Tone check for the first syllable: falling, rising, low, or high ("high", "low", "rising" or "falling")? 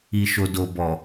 low